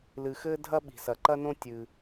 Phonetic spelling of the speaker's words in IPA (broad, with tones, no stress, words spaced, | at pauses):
lɨ˩xɘː˥ dʱɐ˥ ɓi̤˩sɐ˩ǃɐ˥nõ˥ tʲɨ˩